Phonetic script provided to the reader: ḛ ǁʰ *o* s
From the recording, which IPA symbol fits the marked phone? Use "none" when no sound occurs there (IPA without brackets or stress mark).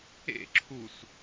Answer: u